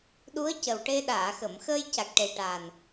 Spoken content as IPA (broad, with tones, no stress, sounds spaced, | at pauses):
ɗ u˧˥ ə̯ c ə˨˩ w ʈ e˧ ɗ aː˨˩˨ x ə˨˩˨ m x əː˧ j c a˨˩ k̚ ʈ e˨˩ ʈ a˨˩ n